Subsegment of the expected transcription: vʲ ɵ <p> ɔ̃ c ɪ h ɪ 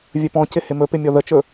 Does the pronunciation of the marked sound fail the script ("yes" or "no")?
no